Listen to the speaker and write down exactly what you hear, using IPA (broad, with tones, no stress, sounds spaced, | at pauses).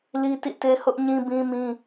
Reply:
l i˦ t ḭ˦˨ t e˦ h ʊ˦ ʔ ɲ ĩ˦ b ĩ˦ m ĩ˦